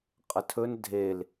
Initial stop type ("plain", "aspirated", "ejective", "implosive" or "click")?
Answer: ejective